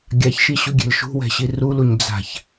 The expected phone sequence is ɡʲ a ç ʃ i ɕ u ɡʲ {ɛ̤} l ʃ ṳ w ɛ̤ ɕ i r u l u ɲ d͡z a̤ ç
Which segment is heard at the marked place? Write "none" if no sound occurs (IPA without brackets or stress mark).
ɛ̤